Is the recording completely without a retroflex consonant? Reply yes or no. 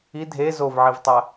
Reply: yes